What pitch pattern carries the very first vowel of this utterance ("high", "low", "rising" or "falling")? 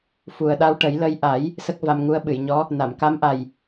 low